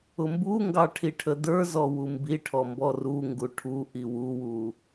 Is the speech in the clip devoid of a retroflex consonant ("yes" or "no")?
no